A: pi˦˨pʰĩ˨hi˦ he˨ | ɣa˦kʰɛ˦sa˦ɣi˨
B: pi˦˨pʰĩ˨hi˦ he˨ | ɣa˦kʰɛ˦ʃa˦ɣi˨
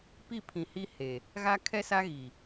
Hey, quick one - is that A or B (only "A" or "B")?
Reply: A